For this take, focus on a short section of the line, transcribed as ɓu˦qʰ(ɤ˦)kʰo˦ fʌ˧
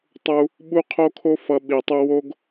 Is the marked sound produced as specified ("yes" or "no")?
no